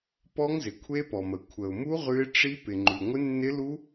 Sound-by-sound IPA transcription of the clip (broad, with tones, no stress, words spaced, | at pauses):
pɔ˦˥ŋzɪ˩ kʷʰe˦˥pɔ˩mə˩ kʷʰə˩ʊ̯mu˦˥ ʁʉ˦˥ɪ̯ ʈ͡ʂi˦˥ pɪ˩ŋ͡ǃʉ˩ ŋʷɪ˦˥nːɪ˦˥lu˦˥